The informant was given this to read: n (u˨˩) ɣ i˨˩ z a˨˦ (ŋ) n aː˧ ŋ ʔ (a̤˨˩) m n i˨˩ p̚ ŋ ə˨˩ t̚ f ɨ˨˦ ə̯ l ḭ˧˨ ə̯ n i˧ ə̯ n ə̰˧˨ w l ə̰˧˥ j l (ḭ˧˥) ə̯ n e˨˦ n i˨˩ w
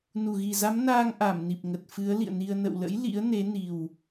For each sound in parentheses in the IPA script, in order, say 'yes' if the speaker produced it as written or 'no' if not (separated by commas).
yes, no, no, yes